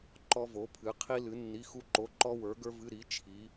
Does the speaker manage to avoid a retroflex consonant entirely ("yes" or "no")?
yes